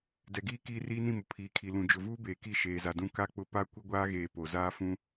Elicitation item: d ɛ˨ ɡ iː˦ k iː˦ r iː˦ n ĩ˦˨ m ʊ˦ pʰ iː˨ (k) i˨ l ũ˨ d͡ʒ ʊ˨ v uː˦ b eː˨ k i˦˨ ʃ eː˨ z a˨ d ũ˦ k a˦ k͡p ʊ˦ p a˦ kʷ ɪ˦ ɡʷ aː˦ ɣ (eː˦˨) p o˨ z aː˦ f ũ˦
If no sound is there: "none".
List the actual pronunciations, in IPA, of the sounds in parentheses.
kʰ, eː˨

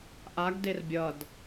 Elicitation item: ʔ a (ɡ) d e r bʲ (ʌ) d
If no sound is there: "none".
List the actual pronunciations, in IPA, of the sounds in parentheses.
ɡ, ʌ

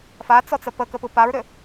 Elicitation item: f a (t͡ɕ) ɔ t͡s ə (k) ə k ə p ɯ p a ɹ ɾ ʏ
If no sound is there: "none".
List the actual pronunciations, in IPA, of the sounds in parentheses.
t͡s, p

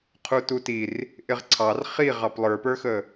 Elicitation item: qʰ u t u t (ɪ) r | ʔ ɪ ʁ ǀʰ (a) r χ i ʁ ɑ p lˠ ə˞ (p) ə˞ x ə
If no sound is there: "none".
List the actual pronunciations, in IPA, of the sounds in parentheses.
i, ɑ, p

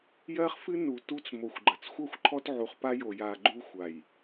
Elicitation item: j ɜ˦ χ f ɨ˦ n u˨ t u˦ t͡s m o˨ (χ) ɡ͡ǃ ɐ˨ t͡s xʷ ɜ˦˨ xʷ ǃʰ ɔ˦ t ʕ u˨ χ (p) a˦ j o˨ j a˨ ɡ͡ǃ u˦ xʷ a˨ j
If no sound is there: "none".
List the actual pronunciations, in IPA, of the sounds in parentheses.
xʷ, p

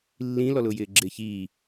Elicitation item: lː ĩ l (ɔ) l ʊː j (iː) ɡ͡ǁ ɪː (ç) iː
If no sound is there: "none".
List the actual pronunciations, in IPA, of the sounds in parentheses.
ɔ, ɪː, ç

